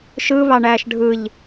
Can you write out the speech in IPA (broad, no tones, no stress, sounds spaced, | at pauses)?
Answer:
ʃ ɯ β ɑ ɳ æː ʃ ɖʱ ɯ ʎ